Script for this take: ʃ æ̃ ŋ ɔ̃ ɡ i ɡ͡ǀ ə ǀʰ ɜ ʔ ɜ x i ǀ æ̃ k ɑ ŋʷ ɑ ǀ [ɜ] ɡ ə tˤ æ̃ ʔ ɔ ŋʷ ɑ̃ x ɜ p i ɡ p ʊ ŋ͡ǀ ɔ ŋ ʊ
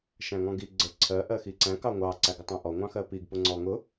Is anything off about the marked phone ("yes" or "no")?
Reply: yes